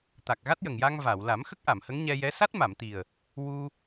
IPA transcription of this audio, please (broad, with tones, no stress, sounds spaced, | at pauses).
t̪ a˨˩ k̚ ɣ a˦˥ t̚ j ə˨˩ ŋ j a˧ ŋ v a˨˩˨ w l a˨˩˦ m x ə˦˥ k̚ ʔ a˨˩˨ m h ə˧˥ ŋ ɲ ɛ˧ j ɛ˧˥ s a˦˥ t̚ m a˨˩˨ m t̪ i˨˩ ə̯ | w u˧